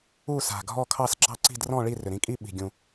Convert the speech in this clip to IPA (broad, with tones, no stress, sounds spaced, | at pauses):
u˥˧ s a̤˨˩ ɡʱ ɔ˥˧ kʰ ɑ˥˧ s ɡ͡ǁ ɑ˥˧ ǀ i̤˥˧ d r ɔ̃˥˧ ɭ i˥˧ r ʏ˨˩ ɾ ĩ˥˧ kʼ i˥˧ ɓ i̤˨˩ ɡʲ ũ˨˩